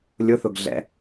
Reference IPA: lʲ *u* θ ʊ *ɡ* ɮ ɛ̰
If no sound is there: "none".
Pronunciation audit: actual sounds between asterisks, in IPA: ʊ, ɡ

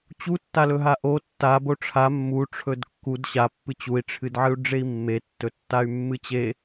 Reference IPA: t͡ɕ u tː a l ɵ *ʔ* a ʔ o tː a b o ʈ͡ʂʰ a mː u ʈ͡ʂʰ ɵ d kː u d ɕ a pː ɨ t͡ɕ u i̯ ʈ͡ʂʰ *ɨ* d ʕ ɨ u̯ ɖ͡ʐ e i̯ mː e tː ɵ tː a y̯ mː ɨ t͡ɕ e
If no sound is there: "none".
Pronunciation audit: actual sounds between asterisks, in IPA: ɦ, ɨ

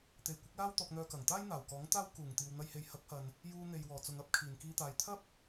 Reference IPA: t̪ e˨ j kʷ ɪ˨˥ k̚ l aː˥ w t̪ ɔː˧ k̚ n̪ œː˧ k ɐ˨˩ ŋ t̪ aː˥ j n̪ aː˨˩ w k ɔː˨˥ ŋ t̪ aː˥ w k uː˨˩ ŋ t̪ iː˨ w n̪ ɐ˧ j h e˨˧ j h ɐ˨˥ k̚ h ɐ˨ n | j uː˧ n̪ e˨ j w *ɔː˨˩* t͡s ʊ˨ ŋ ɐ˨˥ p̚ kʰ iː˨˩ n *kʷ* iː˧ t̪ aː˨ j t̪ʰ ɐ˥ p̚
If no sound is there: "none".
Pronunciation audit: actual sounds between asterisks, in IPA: ɔː˨˩, k

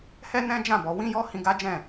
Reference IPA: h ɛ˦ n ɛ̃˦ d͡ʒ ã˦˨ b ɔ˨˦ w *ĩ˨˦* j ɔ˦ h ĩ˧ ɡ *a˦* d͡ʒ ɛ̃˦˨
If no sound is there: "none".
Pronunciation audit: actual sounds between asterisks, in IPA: ĩ˦, a˦

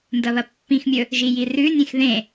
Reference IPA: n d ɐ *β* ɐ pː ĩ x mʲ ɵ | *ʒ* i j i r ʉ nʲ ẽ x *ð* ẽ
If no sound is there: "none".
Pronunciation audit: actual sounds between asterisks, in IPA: β, ʒ, ð

